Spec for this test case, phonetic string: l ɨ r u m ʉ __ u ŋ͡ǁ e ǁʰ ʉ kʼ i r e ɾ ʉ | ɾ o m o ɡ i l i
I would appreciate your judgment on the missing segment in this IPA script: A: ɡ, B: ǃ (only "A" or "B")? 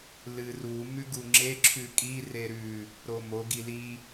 A